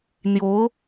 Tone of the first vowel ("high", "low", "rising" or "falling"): rising